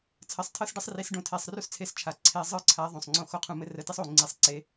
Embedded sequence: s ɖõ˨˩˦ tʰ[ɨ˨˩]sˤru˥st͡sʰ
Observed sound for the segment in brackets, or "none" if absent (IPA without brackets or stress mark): e˨˩